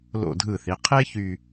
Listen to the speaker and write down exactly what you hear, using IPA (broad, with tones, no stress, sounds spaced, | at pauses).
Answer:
l o̰˧˩ dʱ ɯ˧˩ θ i˩˧ qʰ e˥ ç y˥˧